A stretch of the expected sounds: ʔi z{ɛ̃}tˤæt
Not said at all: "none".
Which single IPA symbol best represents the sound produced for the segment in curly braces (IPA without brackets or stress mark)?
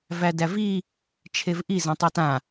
ɛ̃